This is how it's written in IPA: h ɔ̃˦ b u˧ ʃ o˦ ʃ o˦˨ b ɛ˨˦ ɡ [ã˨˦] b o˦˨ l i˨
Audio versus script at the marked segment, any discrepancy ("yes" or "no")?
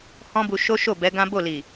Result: yes